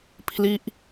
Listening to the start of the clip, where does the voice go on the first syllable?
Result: falling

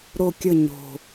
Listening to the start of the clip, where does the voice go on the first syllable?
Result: falling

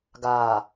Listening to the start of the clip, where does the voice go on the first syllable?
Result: low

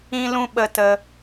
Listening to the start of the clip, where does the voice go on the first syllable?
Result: high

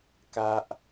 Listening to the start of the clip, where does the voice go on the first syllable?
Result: high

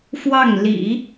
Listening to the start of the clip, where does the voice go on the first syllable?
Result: falling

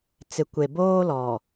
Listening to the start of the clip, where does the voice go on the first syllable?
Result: low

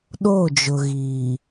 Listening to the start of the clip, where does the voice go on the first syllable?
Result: falling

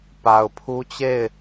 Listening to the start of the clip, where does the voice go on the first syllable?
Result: low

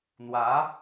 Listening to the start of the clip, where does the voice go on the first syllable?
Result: rising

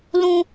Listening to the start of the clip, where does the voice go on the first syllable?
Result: high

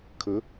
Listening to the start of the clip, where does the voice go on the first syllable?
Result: rising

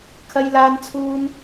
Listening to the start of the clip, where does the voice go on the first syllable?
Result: high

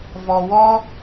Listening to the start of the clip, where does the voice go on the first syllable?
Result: low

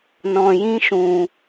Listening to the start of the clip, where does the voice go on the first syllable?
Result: low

